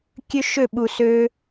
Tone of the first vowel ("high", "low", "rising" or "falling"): high